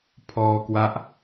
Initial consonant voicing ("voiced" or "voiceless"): voiceless